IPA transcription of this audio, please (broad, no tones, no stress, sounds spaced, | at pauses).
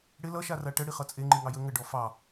ɽ ɪ l ʌ ʃ a r a ʈ ə ɽ i χ ʌ t͡sʼ e ŋ͡ǃ i ŋ ɑ j ə ŋ ə ɖ ɔ f ɑ